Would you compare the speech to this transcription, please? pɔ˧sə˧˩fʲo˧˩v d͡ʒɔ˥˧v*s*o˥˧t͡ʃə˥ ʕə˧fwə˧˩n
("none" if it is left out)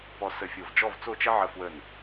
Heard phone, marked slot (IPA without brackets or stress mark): t͡s